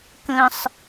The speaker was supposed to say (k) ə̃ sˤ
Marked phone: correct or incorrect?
correct